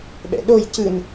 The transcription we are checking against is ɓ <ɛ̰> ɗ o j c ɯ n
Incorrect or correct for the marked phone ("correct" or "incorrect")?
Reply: correct